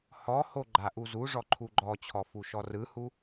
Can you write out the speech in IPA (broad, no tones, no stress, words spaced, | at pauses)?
hɔho ɡ͡ǃaʔuzuʐɔ ǃʰuɡ͡ǃɔt͡ɕʰɔ fuʃɔrɯhu